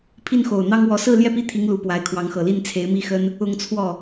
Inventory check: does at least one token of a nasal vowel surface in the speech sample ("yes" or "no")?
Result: no